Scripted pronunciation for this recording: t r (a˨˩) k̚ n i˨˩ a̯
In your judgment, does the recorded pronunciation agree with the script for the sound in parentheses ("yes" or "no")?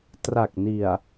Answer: yes